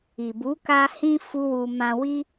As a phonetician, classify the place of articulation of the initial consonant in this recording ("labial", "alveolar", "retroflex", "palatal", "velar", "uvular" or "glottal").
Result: labial